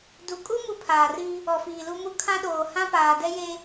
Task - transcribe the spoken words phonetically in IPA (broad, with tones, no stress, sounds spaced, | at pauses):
d u˨ kʼ u˦ m u˦ pʰ aː˨ r i˦ | ɔ˨ f iː˨ l u˦ m u˦ kʰ ã˦ ɗ oː˨ h ã˦ p aː˨ d ɛ˦ j e˦